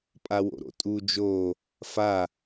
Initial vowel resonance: oral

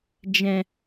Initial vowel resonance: nasal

